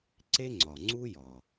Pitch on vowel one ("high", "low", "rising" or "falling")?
high